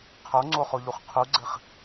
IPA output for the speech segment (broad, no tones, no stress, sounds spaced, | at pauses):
qʰ o ŋ͡ǀ o χ o ʎ u χ qʰ u ɡ͡ǀ ɘ χ